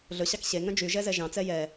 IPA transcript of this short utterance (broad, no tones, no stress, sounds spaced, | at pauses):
ɮ ɵ ɕ ɑ k ɕ e ŋ œ̃ d͡ʒ y ʒ ɛ z ɛ ʒ ɑ̃ t͡s ɛ j ɛ